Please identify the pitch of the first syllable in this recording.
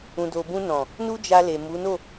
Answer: low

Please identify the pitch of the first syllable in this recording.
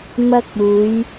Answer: high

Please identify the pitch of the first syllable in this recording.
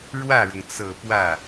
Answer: falling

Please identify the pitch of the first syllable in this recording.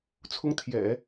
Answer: high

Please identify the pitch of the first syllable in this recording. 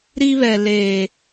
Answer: high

